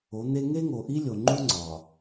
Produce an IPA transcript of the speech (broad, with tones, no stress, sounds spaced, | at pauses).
o˨˦ n̪ e˦ ŋ e˦ ŋ o˨ ʔ i˦ lʲ o˨ ŋ͡ǃ u˦ ŋ͡ǀ ɒ˨